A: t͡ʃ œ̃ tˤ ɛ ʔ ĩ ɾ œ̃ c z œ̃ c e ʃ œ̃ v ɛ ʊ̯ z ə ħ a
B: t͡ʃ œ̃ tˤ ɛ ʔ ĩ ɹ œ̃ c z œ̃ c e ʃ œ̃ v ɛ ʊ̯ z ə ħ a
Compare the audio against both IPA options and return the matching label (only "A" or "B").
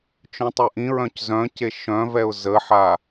B